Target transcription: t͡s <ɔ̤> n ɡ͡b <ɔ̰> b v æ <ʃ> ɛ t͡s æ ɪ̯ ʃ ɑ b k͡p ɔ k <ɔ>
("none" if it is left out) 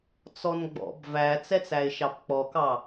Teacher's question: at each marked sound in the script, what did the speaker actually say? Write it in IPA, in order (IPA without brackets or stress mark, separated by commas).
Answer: ɔ, ɔ̰, t͡s, ɑ